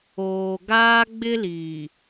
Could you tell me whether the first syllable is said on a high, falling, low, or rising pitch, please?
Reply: low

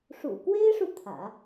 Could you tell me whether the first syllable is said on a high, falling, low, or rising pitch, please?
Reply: low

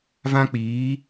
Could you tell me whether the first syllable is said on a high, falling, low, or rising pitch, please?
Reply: high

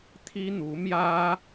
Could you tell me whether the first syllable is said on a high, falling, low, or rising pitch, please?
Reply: high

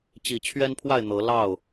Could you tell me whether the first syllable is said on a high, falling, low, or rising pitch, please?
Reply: low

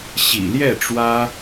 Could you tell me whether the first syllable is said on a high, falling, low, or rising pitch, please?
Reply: low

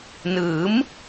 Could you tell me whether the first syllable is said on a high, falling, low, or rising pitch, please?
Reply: rising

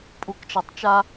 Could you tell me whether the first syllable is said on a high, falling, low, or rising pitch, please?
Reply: low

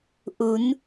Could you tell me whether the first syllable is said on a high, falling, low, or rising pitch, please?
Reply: rising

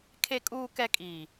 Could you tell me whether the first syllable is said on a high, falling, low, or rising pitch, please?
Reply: low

